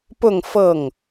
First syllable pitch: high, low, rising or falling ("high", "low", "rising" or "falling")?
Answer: falling